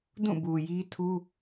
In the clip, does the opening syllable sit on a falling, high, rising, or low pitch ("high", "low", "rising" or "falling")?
falling